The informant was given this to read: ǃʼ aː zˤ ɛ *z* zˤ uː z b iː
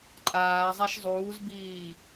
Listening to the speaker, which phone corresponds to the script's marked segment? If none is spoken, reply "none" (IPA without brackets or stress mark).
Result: ʃ